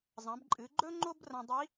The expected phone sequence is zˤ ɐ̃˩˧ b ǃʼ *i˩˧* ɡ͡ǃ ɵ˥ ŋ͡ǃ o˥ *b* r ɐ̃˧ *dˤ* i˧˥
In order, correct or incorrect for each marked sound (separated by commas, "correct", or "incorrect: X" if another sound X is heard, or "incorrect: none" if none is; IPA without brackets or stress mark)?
incorrect: ɨ˩˧, correct, correct